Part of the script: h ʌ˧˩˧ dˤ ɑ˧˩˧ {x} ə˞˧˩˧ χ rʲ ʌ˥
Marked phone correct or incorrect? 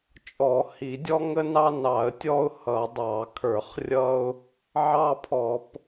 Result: incorrect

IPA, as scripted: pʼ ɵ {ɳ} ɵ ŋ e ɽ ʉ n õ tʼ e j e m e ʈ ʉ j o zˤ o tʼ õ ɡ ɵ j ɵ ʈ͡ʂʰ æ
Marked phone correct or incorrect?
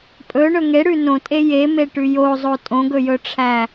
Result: correct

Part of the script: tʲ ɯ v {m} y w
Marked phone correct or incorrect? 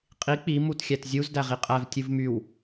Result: correct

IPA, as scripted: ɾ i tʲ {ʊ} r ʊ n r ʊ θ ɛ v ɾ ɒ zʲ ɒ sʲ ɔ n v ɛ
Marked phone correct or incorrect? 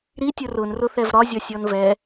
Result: correct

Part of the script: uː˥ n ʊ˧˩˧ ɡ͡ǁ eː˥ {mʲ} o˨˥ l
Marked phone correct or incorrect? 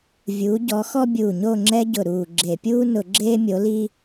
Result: correct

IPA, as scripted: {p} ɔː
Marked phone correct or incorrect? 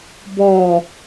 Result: incorrect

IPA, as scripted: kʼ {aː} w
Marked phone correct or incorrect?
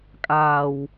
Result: correct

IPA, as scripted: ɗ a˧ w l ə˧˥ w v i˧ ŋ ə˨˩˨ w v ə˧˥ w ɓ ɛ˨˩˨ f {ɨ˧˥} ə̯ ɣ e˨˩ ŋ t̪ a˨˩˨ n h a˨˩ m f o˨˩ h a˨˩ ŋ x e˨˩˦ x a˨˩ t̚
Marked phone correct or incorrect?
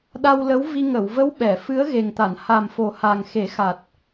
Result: correct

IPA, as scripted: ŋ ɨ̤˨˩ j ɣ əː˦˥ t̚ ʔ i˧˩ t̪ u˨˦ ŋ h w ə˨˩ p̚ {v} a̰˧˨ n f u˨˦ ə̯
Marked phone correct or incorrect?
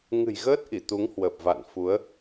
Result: correct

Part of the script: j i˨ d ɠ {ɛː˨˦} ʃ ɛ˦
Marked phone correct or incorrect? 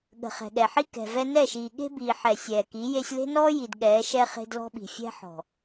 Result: correct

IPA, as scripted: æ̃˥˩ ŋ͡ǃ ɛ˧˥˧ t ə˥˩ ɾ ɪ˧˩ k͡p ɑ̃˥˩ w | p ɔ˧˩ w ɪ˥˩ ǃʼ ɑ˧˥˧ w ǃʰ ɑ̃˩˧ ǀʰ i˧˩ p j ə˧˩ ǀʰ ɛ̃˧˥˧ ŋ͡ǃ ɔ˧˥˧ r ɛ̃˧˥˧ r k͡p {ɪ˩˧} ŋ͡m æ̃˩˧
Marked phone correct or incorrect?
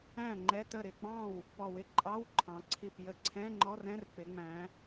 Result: correct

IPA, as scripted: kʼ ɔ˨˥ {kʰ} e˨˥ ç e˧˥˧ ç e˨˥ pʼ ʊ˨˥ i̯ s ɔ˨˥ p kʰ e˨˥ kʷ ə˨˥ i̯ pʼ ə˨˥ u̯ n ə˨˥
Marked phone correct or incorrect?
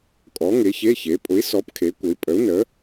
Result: incorrect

